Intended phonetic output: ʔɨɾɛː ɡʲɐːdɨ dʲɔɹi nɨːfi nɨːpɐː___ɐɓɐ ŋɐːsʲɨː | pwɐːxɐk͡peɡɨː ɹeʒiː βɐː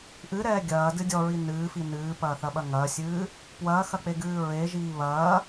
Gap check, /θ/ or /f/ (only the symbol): θ